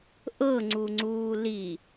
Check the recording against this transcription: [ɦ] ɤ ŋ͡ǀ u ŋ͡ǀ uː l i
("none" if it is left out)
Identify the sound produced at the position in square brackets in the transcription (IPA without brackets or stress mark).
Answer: ʔ